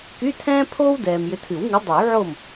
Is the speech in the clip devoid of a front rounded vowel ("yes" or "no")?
no